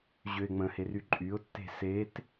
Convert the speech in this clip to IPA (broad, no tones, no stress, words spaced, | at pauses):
ʑøɪ̯ŋ͡mə̃her yǃʼyʊ̯tːe̤ set